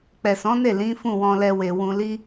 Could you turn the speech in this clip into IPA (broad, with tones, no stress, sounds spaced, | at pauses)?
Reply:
k͡p ɛ˨ s ɔ̃˨˦ n e˦˨ l ĩ˨˦ f ũ˦˨ w ɔ̃˧ l ɛ˧ w e˨ w ũ˧ l i˦